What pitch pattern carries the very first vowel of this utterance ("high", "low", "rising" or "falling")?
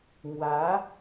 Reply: rising